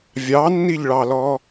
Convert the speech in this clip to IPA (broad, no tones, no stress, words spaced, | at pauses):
vʲɑnːiʎɭɑlɔ